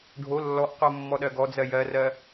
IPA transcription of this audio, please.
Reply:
ɖʱ o lː ɔ ʔ q o mː ɔ ɗ ɜ ɡ ɔ d͡z ɜ j ɜ r ɜ

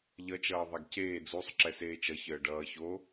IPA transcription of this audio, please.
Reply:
ʎ ʌ t͡ʃ ʌː ðˤ a ɡ c eː d͡z u sˤ ǁ ɛ s eː t͡ʃ ʌ ç əː ɖ ʌː ç o

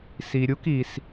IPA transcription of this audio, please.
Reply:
s i˩ ɾʲ u˥ k i˩ s

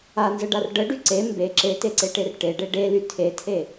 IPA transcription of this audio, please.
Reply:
a n z ə ɖ a r ɖ ə ɖ y ǀ e m b e ǁ e t e ǀ e ʈ e r ʈ e ɖ e ɖ e l y tʰ e tʰ e

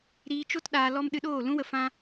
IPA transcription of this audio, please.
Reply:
ɾ iː˧ t͡ʃ o˦ t ɗ aː˧ l ɔ˦ m ɗ ɨ˧ ɗ oː˦˨ l ũ˦ w ə˧ f ã˦

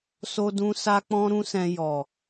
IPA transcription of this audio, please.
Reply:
s o˧ d ũ˧ s a˧ k͡p ɔ̃˧ ɾ ũ˧ s ɛ̃˨ j ɔ˨

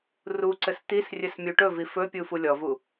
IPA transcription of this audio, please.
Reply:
r u ǀ ɘ s t̪ i s rʲ ɘ s mʲ u ʈ ɵ v i f ɵ pʲ u f u lʲ ɔ v u

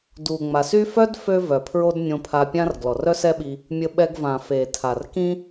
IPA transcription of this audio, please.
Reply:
d u˩ ŋ͡m a˩ s y˥ f œ˥ d f ø˥ v œ˩ pʰ ɹ o˥ d nʲ õ˧ pʰ a˧ pʲ ã˥ r ɡ l ɔ˩ r œ˥ s ɛ˥ ɓ i˧ | mʲ ə˧ ɓ ɛ˧ ɡ v ã˩ f e˩ tʰ a˩ r k ĩ˥

